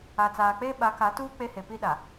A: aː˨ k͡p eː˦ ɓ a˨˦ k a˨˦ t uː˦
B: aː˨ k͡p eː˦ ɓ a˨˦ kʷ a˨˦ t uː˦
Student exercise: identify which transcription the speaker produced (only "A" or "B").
A